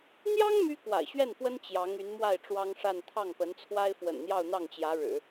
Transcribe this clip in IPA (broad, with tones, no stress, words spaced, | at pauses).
n̪jɑ˥ŋ my˥kwa̰˨˩ɪ̯ɕɥɛ˥˩nfwə˥n t͡ɕjɑ˧˥ŋy˧˥nmwa˥˩ɪ̯ ʈ͡ʂwɑ˥ŋʂa˥˧n t̪ʰɑ˥˩ŋpə˧˥nt͡sʰwa˥ɪ̯ fwə̰˨˩nn̪jɑ˥˧ʊ̯n̪ɑ˥˩ŋt͡ɕjä˧˥ ɻɻ̩˨˩˦